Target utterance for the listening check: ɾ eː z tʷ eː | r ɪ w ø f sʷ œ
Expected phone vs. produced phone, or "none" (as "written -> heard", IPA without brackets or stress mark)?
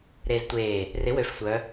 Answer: none